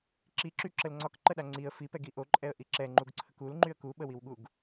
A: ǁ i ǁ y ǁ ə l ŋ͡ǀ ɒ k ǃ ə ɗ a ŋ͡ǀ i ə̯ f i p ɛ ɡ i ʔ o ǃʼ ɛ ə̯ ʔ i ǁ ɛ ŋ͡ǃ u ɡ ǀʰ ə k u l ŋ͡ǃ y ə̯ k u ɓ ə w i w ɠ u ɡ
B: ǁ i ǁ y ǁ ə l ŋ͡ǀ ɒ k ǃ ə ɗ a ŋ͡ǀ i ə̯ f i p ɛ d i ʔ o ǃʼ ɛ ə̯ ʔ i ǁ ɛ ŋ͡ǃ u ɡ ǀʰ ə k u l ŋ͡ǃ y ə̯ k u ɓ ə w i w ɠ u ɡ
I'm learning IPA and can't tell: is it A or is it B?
A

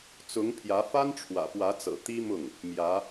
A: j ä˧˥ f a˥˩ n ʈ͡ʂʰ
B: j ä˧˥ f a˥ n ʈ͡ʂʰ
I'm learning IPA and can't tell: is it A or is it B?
B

